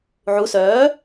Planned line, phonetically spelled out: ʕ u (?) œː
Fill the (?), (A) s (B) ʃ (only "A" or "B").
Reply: A